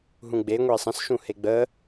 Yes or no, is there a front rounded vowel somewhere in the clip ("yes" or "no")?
no